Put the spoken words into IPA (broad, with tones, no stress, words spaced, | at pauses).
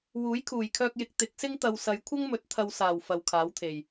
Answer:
wuː˨˥jkʰuː˨˩jkʰœː˧k̚jɪ˨k̚ t̪ɪ˨˥k̚sɪ˥ŋ t̪ɐ˨wsɐ˨˧jkʷʰɐ˥ŋmɵ˨˥t̚ t̪ʰɐ˧wsaː˨˩w fɐ˨wkʰaː˨˥wt̪ʰe˨˩j